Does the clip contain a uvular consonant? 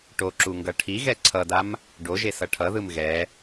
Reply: no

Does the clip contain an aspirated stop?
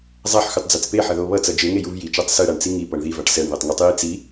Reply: no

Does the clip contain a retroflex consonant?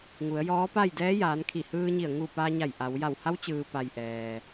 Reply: no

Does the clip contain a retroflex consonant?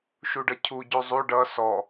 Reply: yes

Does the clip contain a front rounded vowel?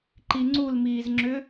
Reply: yes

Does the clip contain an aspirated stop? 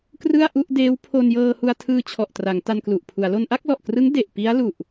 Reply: yes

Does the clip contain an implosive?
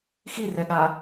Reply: yes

